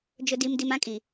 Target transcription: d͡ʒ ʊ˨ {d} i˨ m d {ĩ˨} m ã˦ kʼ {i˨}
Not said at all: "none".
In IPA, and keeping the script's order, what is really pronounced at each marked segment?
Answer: d, i˨, i˨

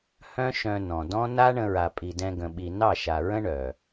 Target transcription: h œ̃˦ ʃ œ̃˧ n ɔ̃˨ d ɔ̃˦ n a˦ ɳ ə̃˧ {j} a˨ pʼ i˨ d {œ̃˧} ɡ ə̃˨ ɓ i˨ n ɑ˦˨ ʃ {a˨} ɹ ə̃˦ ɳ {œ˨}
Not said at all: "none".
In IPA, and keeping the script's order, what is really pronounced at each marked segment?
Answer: ɹ, ɛ̃˧, a˨, œ˨

